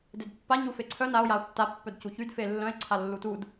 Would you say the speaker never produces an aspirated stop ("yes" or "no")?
no